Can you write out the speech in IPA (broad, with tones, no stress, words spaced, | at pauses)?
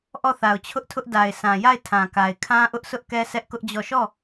ʔɔ˦˨θa˨ʊ̯t͡ɕʰʊ˦ʔtʰʊ˦ʔ da˨ɪ̯sã˨ja˦˨ɪ̯ tʰã˨ka˨ɪ̯ kʰã˦ʔʊ˦ʔsʊ˦ʔkɛ˦ sɛ˦ʔkʊ˦ʔd͡ʑɔ˦˨ ʃɔ˦˨